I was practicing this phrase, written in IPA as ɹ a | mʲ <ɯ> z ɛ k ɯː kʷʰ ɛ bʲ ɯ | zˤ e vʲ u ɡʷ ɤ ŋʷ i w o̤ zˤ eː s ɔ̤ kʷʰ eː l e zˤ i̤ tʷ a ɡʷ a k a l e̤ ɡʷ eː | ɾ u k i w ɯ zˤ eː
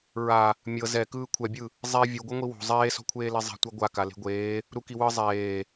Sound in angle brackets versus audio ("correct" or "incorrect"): incorrect